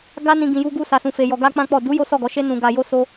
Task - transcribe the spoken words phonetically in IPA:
ɡ a˦ n ĩ˧ ɡ ĩ˧ j u˦ ɡ u˦ s a˧ s ũ˧ f e˧ j ɔ˧ ɡ a˦ k͡p ã˦ k͡p ɔ˦˨ d u˨˦ j o˦ s ɔ˦˨ ɡ ɔ˨˦ ʃ e˦ n ũ˧ ɡ a˧ j o˦ s o˦

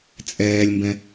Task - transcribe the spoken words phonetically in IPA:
t͡sʼ ɛː lʲ m b ɛ̃

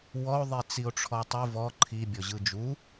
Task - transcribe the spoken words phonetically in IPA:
w ɔ o̯ ðˤ i t͡s i o̯ ʈ͡ʂʰ ɔ tˤ u v ɔ ǃʰ i bʲ ɔ ʑ ɯ d͡ʒ u

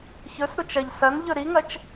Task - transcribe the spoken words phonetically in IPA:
ç ɵ s ɾ u t͡ʃ ɐ ʎ s ɐ n ʎ ɵ ɾ i ŋ ɐ t͡ʃ

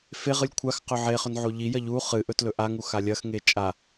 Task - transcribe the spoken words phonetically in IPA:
f e ʁ ɨ lʲ kʷʰ a x q ɵ ʕ e χ ɵ n ʕ o ʎ i j ɐ ʎ u χ ɨ ʔ ɵ t l ɵ ʔ a ŋ u x a lʲ ɐ x ŋ e t͡ʃʼ a

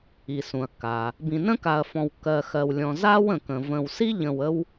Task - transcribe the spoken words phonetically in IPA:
i˩ s ũ˩ ɐ̯ kː a˩ | b ĩ˨ n ə̃˥ k a˨ ɐ̯ f ɔ̃˨ w kː ɜ˨ x ɜ˨ w lʲ ɔ̃˨ z a˦ w ə̃˩ k ə̃˩ v ə̃˨ w s i˥ ʎ ə̃˨ w ə˦ w

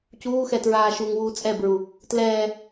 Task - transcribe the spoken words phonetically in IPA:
c uː x ɛ t ɹ aː ʃ uː ŋ w uː t͡sʼ ɛ b ɹ u | t l ɛː

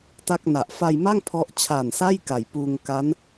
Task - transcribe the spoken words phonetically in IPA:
t a˥˩ k̚ n a˨˩ ʔ f a˧ j m a˥˩ ŋ pʰ ɔ˦˥ ʔ t͡ɕʰ a˨˩ n s a˥˩ j k a˨˩ j p uː˧ ŋ k a˦˥ n

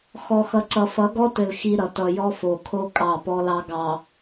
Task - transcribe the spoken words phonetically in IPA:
x ɔ˨ x ʌ˨ ǀ ʌ˨ f ʌ˨˦ ɡ ɔ˦ t ɘ˨ l x i˦ ɾ ʌ˨ t ʌ˨ j ɔ˦ f o˨ kʰ o˦ kʼ ɑ˦˨ p ɔ˦ l ɑ˦ ɡ ɑ˨

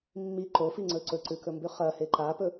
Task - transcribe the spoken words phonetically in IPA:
mː i ǃ o f i ŋ͡ǀ ɵ ǀ ɵ ǀ ʉ k ɵ m b ʉ χ ɐ h e ǃ a p ɵ

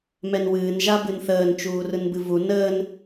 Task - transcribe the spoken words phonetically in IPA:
m ɛ n w ɨː n ʒ a b ɨ n θ əː n t͡ʃ uː r ɯ n b ɨ v u n əː n

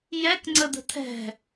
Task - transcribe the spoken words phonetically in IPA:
j ɛ k ŋ͡ǀ ə d̪ ə̤ t̪ʰ ɛ̤

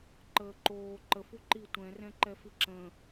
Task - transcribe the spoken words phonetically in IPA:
ǃ əː ǃ oː ǃ ə f u ǃ i tʷ ɛ̃ r ɛ̃ ǃ ɛ f i ǁ ə̃

